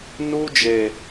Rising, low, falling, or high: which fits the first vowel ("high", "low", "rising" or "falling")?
high